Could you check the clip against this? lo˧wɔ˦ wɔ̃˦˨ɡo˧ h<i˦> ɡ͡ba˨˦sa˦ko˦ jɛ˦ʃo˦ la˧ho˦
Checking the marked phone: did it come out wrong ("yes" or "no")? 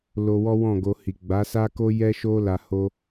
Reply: yes